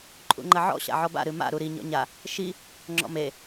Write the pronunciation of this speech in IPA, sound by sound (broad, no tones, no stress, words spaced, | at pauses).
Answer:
ǃʼṵŋ͡ǃɐʕɔ̰ ɕa̰ʕɔba̰ ɾɨma̰ ɾuɾi ɲɔ̰ɲa | ʃi | ŋ͡ǁɔ̰me